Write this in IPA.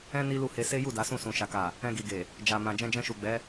ɛ̃˦ ni˦lu˦˨he˧ se˦ju˦˨ da˨˦sũ˦˨sũ˨ ʃa˨ka˨ | ɛ̃˧ɡi˨ɡe˨ | d͡ʒa˨mã˨ d͡ʒɛ̃˧d͡ʒɛ̃˧ʃu˨ɡ͡bɛ˨˦

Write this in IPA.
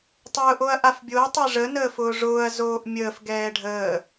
tˤʊːʔoɐ̯ʔafbʲoɐ̯ tˤɛʐə nəːfʊːʐʊːɐ̯ zoːʔmʲəːf ɡɛːɖʱəː

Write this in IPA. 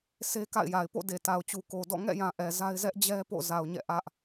se˦ka̰˦˨ɪ̯ja˨ɪ̯ po̰˦˨de˨ ta˨ʊ̯t͡ɕu˨ko˨dɔ̰˦˨ ŋɛ̰˦˨jã˨ ʔɛ˨za˦ɪ̯ zɛ˦ʔd͡ʑɛ˦ po̰˦˨ za˨ʊ̯ɲɛ̰˦˨ʔä˦ʔ

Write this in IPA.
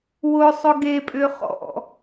wʊsˤʊ ɡepʼʏ χɔ̰

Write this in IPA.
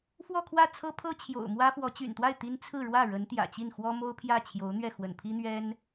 fwɔ˥˧kʰwä˥˩ t͡sʰɤ˥pʰɤ˥ t͡ɕʰjo̰˨˩ʊ̯mwä˥fwɔ˧˥ t͡ɕy̰˨˩nt̪wa˥˩ɪ̯ t̪i˥n t͡sʰɹ̩˥˧ɻwä˥˩ ɻə˧˥nt̪jä̰˨˩t͡ɕi˥˩n xwɔ˥mo˥ʊ̯pʰjä˥˩ t͡ɕʰjo˧˥ʊ̯n̪ɥɛ˥˩ xwə̰˨˩npʰi˥n̪ɥɛ˥n

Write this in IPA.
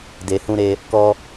de˧hũ˦ ɾe˦ | kɔ˦

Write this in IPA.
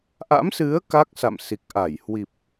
ʔa̰˧˥msɨ˨˦ə̯ ka˦˥k̚sa̰˧˨msi˨˩k̚ʔa˧˩j hwi˨˩p̚

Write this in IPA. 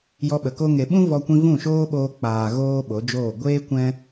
jɔ˧ɓə˨ko˦ ŋe˨ɓũ˦ vɔ˧kʷĩ˧ vũ˦˨ ʃoː˦ɓoː˧k͡paː˨ ɣoː˦ɓo˨˦d͡ʒoː˦˨ ɡʷeː˦ kʷɛ̃˦

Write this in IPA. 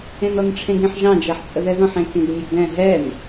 ẽnɔnʈ͡ʂʰẽɡẽħ ʒɑ̃ d͡ʒɛħt͡sʼəðɛðɔ̃ħ ẽkẽɡmʲeɡdɛ̃ ɦɛn

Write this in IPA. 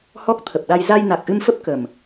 hɔ˦˥k̚t̪ʰə˨˩p̚ɗa˧j za˧jna˨˩k̚ʔɨ˧mfə˦˥p̚ kə˨˩m

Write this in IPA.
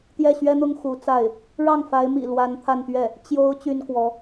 t̪jɛ˥˩ɕɥɛ˥n̪ʊ˥ŋ xu˧˥t͡sa˥˩ɪ̯ | ɻɑ˥˩ŋfa˧˥ɪ̯mḭ˨˩ lwa˧˥nt̪ʰa˥˧nt̪ɥɛ˥˩ | t͡ɕjo˧˥ʊ̯ t͡ɕy˥nkwɔ˧˥

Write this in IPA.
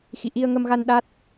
xḭ˧˨ʔi˧ə̯ŋə˧mɣa˧n ɗa˦˥t̚

